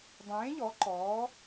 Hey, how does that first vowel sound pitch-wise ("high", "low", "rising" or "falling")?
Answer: rising